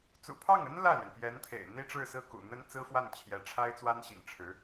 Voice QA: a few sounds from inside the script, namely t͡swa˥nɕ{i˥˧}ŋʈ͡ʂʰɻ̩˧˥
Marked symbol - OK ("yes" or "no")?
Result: no